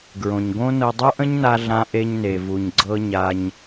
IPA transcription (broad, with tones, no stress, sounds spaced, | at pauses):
ɡ ɹ õ˩ ɲ ɡ õ˥ n ɤ˧ dˤ u˥ ʔ ə̃˥ ɲ n a˧ ɮ ã˧ ʔ e˧ ɲ n e˩ v u˩ ɲ ɡ͡ǀ ɤ˧ ɲ a˧ ɲ